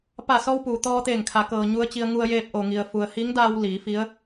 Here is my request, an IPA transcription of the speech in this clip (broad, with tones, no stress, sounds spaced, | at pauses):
p a˧˩ s ɔː˧ w p uː˩ t̪ ɔː˧ t̪ eː˧˩ ŋ kʰ a˩˧ k ɤː˩ ɲ u˧ ə̯ t͡ɕ i˧ ə̯ ŋ u˧ ə̯ j eː˧ p̚ ʔ o˩ ŋ i˩ ə̯ f u˩ ə̯ h i˧˥ ŋ d aː˧ w l iː˩˧ f i˧˥ ə̯